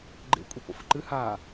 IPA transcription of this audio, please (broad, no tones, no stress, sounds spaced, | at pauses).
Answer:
ɡ͡ǃ ḛ kʷʼ i p o̰ f ɨ ǃ ɨ h a